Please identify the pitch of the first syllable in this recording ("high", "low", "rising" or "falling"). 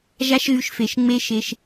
high